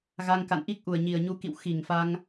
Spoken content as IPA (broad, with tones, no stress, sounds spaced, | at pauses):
ɣ a˧ ŋ k a̰˧˨ n ʔ i˦˥ k̚ ʔ u˨˩ ə̯ ɲ i˨˩ ə̯ ɲ u˨˦ k ḭ˧˨ w x i˧˩ ŋ f a˧ ŋ